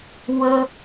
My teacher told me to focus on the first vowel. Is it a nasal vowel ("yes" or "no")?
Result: no